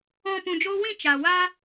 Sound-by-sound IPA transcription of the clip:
ɔ̃˨ p ũ˨ d͡ʒ oː˧ w ĩ˦˨ t͡ʃ a˨ w a˦

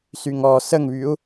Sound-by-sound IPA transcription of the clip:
s y ŋ ɔ s ə ŋ β y u̯

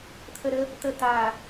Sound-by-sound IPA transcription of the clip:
t̪ʰ ə˨ ɾ ə˦ | t̪ ə˨ t̪ a˨

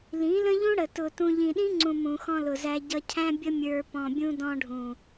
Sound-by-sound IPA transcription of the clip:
l ĩ˨˦ l ə̃˦ ʎ ũ˦ ɽ ə˨ t ʊ˨ t ũ˨ ʎ ĩ˨ ɗ ĩ˦ ŋ͡ǀ ũ˨ m ũ˨ x ɔ̃˧ l ʊ˨ z æ˧ ɟ ʌ˧ cʰ æ̃˦ bʲ ə˦ mʲ ə˞˧ p ɔ̃˨ bʲ ũ˧ d ɔ̃˧ ɖʱ ũ˨

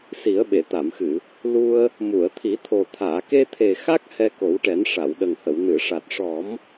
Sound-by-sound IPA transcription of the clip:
s i˨˩˦ ə̯ ɓ e˨˩˨ t̪ a˨˩˨ m x ɨ˨˩˨ | l u˧ ə̯ | m u˨˩˨ ə̯ t̪ʰ i˨˩˦ t̪ʰ o˨˩ t̪ʰ aː˨˩˨ k e˧ t̪ʰ e˨˩ x a˦˥ k̚ h ɛ˧ k o˨˩˦ w ʈ ɛ˨˩˦ n ʂ a˨˩˨ w ɗ ə˨˩ ŋ h ə˨˩˨ w n ɨ˨˩˨ ʂ a˨˩ t̚ ʂ ɔ˨˩˦ m

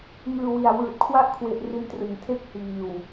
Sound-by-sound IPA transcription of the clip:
ŋ ɯː˧ w i˨˩ a̯ w ɯː˨˩ t̚ kʰ w a˥˩ ʔ kʰ w e˨˩ ʔ r i˧ n t r ɯ˩˦ ŋ tʰ e˥˩ k̚ h iː˨˩ w

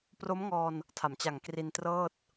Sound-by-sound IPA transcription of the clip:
p r o˦˥ m ŋ ɔː˧ n | tʰ a˩˦ m t͡ɕ a˨˩ ŋ k r i˧ n t r ɤː˥˩ t̚

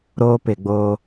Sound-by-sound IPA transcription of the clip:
ɾ oː˦ p ɪ˨ ɡ͡b oː˦

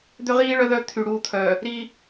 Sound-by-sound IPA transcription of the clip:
d̪ ø˦ ʁ iː˦ ɭ œ˦ ð œ˦ t̪ʰ y˨ ɽ uː˦ t̪ʰ œ˨ | ɾ i˦

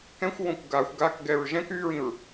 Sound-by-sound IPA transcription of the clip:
k ɛ̃ xʷ w õ kʷ ɡ a xʷ ɡ a k ɡ ɛ ɹ ʒ ɛ̃ k y ɹ ĩ ɹ

